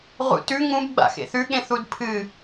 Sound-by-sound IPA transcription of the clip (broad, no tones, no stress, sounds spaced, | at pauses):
ʁ ṵ t ʉ ŋ ũ b ɡ͡b a̰ x ḛ θ ʉ ɠ ẽ θ u d pʰ ɨ